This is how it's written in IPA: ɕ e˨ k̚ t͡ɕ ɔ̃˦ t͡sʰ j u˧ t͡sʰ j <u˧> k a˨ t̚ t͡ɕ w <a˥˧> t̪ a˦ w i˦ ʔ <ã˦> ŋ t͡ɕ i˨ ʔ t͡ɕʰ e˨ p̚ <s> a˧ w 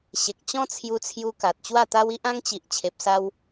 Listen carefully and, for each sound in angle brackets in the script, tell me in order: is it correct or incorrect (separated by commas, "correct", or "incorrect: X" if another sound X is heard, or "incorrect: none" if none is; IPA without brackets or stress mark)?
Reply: correct, correct, correct, correct